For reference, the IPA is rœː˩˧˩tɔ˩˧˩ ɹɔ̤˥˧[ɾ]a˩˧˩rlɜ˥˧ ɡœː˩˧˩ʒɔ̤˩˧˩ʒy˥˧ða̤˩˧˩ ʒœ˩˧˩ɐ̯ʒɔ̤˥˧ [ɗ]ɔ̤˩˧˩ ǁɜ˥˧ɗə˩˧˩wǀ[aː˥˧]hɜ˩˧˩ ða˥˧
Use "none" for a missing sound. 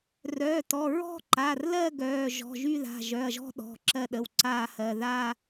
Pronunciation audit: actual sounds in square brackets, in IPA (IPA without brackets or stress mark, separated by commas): ǃ, ɗ, aː˥˧